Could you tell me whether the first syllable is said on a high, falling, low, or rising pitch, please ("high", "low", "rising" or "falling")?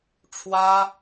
high